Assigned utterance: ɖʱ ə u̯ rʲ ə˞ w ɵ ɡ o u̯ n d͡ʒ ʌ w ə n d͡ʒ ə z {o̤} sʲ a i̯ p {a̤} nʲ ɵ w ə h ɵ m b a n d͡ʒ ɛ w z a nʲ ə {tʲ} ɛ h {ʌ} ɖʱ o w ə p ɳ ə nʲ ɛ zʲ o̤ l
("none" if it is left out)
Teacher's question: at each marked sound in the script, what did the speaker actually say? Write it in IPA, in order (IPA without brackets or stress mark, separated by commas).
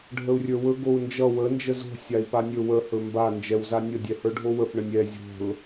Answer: o̤, a, dʲ, ə˞